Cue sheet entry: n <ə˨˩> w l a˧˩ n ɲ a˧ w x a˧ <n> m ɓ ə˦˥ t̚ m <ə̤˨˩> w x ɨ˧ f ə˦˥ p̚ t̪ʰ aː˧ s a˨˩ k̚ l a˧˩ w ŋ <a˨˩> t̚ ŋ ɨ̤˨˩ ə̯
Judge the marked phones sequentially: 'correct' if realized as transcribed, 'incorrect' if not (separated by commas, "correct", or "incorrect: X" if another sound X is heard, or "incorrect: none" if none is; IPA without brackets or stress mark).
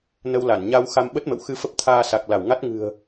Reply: incorrect: ə˧, incorrect: none, incorrect: ə̰˧˨, incorrect: a˦˥